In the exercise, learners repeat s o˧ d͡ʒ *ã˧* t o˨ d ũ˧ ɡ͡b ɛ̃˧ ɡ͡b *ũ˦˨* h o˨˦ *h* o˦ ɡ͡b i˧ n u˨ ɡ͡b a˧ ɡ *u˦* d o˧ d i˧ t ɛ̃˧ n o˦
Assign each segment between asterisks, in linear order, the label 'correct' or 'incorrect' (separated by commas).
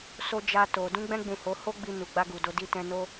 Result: incorrect, incorrect, correct, incorrect